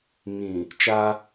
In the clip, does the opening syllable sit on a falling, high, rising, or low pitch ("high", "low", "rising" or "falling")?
low